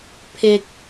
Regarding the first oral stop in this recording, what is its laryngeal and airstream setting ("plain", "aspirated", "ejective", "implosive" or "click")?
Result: aspirated